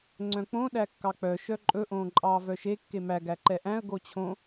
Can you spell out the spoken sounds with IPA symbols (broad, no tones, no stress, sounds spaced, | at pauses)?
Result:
ŋ͡ǀ œ̃ k͡p õ ɗ æ kː ɑ k͡p œ ʃ œ ǃʼ ɵ ʔ õː ǃʼ ɑː v œ ʃ e kː e m æ ɡ æ ǃ ɛ ʔ æ̃ ə̯ ɡ o t͡ɕʰ õ